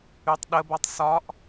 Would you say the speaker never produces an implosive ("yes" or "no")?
no